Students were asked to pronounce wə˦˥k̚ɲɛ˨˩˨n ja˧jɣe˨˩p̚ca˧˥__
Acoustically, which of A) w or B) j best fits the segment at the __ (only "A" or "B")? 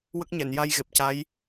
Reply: B